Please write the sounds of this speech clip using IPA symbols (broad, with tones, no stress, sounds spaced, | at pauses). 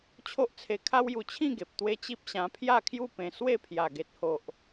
t͡ɕʰ o˦ ʔ t͡sʰ e˧ kʰ a˦ w j u˧ t͡ɕʰ ĩ˥˧ ɡ e˨ p̚ t̪ w e˦ t͡ɕ i˦ p̚ ɕ ã˧ pʰ j a˥˧ kʰ j u˥˧ p ẽ˧ s w e˥˧ pʰ j a˨˩ ɡ e˨ t̚ h o˨ ʔ